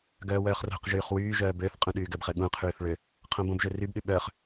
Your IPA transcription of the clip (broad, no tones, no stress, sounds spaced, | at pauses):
ɡ œː w œː χ r o̤ q ʒ yː χ w yː ʒ œː b ø θ qʼ ũ ɗ yː ɡ ə b χ ə ɠ ũ qʰ yː θ ɭ ø | qʰ õ b õ b ʒ ø r y b ɗ y ɓ œː χ